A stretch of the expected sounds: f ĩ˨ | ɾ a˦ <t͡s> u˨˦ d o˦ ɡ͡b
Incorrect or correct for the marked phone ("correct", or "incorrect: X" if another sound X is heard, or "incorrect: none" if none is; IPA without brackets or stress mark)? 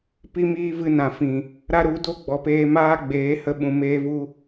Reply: incorrect: ɾ